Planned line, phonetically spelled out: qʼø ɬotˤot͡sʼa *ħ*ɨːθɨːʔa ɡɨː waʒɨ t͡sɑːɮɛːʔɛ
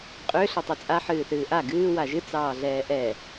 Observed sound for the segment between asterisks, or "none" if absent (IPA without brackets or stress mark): ħ